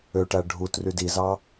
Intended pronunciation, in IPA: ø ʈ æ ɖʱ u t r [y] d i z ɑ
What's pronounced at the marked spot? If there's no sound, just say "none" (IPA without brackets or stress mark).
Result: y